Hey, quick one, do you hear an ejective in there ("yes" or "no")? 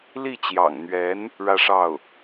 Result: no